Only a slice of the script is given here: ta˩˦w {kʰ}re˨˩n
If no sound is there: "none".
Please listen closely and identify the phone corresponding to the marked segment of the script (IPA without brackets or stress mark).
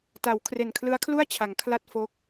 kʰ